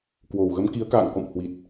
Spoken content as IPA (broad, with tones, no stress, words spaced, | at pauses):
kwo˨˩wɣə˨˦m ki˨˦ə̯ka̰ː˧˨ŋkɔ̰˧˨m hwi˨˩t̚